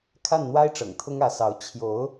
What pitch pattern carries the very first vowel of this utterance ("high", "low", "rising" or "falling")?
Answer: falling